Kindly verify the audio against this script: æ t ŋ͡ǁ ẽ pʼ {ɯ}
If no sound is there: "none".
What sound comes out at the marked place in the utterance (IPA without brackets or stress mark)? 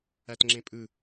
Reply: ɯ